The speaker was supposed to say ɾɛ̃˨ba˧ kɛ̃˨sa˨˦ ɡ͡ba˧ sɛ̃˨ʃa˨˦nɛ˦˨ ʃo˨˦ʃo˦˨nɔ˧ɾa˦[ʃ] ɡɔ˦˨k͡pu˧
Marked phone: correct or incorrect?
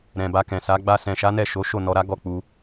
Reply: incorrect